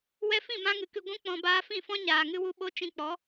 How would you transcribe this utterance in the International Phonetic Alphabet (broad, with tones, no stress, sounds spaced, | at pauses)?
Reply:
w ɛ˧ f ĩ˦˨ m ã˧ ŋ ɨ˨ k ɨ˨ ɡʷ ũ˧ k͡p ɔ̃˨ b aː˧ f ĩ˦˨ f ɔ̃˦ ɲ aː˨ ŋ ɨ˦ w u˦ ɓ o˦ t͡ʃ ĩ˦ k͡p ɔ˨˦